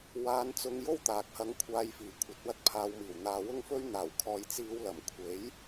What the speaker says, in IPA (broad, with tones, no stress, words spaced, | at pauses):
waː˧nt͡sʊ˧ŋjo˥w t̪aː˨k̚hɐ˧ŋkʷʰaː˧j fiː˨˩kʷʰɐ˨˥t̚wɐ˧t̚ pʰaː˨˧wmiː˨˩w n̪aː˨˧wʊ˥ŋfɵ˥ɥ n̪aː˨˩wkʰɔː˨jt͡siː˨˧w lɐ˨˩m kʷʰe˨˥j